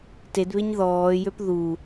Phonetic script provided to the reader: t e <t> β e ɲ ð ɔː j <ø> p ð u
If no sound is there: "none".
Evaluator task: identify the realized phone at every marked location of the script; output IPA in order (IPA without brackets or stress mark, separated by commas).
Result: d, ø